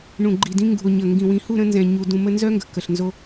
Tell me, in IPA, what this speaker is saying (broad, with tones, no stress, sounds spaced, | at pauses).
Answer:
ɳ ũ˨ ɡ͡ǃ i˨ d ĩ˧ ŋ ɡ ṳ˨ o̯ ɲ ə˨ ŋ ɡ ĩ˨ w ĩ˨˦ h u˦˨ ɾ ə̃˧ n z ɛ̃˨ ɲ u˨ d ũ˧ m ə˦ n z œ˦ ŋ ɡ ə̤˨ k ə˨ ɬ n z o˧